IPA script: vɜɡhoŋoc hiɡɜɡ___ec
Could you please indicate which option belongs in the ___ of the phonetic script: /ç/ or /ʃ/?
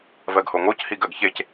ç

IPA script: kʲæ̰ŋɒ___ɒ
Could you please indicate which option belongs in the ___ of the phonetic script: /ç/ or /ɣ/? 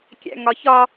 ç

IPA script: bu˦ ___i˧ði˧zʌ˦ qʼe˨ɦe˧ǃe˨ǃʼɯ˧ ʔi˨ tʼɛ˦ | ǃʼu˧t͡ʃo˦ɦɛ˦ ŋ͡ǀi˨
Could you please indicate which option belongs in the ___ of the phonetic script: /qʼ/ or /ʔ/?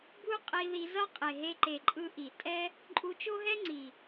qʼ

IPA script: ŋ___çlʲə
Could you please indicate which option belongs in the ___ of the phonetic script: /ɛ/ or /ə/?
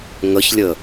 ə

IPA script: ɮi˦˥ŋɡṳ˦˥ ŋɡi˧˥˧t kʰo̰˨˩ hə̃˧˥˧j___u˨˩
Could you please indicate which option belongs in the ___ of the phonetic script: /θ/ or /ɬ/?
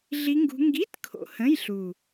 ɬ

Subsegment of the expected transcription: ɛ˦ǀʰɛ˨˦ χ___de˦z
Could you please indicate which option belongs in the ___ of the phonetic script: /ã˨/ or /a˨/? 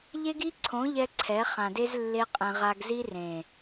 ã˨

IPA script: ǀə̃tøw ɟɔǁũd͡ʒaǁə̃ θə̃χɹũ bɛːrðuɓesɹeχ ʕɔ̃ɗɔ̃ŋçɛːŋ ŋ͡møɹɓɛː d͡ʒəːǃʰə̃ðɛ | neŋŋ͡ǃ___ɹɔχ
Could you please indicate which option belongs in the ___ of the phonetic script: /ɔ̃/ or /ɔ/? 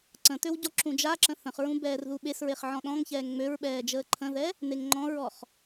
ɔ̃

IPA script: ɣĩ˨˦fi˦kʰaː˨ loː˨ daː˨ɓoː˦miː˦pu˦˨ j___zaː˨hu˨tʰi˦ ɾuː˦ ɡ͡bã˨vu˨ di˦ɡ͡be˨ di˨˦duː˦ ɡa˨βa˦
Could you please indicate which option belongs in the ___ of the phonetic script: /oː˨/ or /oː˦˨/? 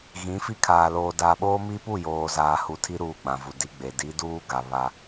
oː˨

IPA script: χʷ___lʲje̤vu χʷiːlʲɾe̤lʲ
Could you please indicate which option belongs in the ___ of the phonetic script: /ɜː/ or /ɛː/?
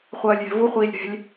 ɜː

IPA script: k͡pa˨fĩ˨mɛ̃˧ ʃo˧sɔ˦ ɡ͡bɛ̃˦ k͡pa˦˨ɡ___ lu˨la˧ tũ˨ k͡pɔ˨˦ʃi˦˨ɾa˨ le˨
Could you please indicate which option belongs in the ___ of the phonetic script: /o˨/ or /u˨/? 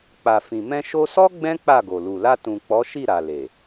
o˨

